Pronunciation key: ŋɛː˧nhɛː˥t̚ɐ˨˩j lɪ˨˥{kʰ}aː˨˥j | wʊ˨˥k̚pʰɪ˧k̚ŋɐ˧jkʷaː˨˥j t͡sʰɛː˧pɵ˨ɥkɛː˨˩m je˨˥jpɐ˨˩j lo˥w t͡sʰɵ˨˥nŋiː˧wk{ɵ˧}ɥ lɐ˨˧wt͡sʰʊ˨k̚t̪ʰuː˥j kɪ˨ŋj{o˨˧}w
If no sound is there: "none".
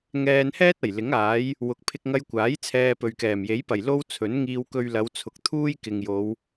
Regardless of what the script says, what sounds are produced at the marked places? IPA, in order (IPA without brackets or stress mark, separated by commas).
ŋ, ɵ˧, o˨˧